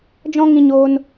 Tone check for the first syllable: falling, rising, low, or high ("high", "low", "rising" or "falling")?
high